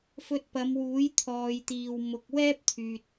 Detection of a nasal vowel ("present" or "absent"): absent